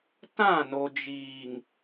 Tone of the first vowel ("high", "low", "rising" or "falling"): falling